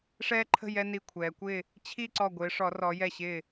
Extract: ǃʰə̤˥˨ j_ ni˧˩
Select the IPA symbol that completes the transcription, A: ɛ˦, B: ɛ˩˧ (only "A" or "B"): A